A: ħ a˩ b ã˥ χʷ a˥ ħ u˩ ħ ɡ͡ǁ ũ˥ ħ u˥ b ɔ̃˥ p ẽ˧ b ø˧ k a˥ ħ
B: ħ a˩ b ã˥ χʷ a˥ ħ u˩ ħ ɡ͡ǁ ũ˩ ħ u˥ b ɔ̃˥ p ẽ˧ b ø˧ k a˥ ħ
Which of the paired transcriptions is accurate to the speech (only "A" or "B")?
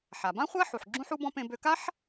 A